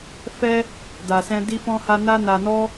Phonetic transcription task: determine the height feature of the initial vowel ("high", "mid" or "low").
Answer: mid